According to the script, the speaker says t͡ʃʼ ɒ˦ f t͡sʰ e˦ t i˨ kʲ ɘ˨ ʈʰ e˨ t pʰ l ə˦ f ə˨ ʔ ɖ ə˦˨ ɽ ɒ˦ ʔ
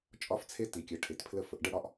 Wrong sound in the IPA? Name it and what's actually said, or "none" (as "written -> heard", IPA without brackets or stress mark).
none